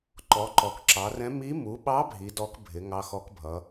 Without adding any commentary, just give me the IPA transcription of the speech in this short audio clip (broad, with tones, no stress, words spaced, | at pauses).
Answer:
ǃɔ˩˧ǃɔ˩˧kǁɑ˩˧rɛ̃˧˥ mi˧˥ mu˩˧ɓɑ˧˥ bʱi˩˧dɔ˧˥k bʱɪ˩˧ ŋɑ˧˥xɔ˧˥kbʱʌ˩˧